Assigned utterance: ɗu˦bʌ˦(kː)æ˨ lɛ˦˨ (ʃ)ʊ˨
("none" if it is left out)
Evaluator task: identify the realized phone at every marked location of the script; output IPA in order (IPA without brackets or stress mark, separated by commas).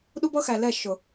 x, ʃ